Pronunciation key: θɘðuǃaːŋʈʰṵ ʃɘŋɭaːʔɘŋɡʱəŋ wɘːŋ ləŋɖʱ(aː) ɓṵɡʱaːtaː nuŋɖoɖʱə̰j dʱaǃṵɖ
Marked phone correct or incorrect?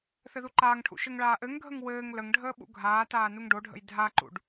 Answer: incorrect